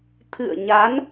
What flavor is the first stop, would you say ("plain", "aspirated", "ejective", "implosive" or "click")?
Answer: aspirated